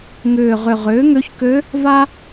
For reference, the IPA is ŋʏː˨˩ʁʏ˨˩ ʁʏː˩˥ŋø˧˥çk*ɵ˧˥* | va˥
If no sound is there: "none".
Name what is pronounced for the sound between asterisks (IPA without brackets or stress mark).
ø˧˥